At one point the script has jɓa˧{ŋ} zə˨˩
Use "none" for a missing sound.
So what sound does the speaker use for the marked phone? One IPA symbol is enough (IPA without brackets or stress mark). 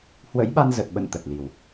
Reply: n